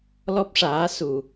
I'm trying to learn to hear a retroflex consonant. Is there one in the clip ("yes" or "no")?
yes